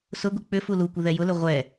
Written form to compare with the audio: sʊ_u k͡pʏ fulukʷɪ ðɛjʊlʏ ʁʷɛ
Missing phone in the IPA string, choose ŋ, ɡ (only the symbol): ɡ